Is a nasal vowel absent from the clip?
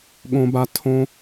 no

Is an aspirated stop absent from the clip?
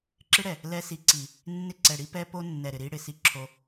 no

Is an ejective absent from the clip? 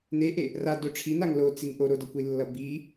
yes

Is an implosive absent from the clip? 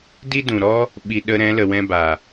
no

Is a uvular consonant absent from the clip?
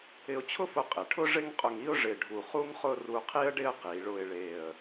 no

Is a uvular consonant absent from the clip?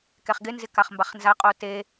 no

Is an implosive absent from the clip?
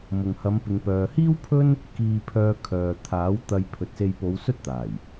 yes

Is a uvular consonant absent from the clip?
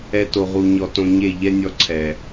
no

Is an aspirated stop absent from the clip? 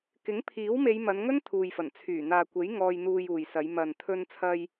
no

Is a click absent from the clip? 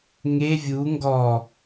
yes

